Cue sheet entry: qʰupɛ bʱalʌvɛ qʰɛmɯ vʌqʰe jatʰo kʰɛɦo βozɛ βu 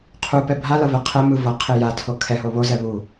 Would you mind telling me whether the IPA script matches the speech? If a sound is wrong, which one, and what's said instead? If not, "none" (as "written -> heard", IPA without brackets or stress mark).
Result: none